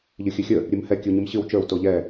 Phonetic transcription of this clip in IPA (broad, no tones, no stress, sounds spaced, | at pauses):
ʎ ɨ xʲ ɨ xʲ ə | ɾʲ ɨ m h ɛ kʲ ɨ w ɲ i m ɕ ɨ w t͡ʃ ə˞ w t o ʎ ɛ